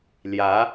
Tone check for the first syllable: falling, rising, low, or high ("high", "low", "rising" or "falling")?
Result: rising